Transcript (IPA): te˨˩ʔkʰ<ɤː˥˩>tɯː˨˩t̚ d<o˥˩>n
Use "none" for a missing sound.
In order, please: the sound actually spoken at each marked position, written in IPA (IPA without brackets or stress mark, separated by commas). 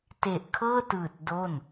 ɤː˥˩, o˥˩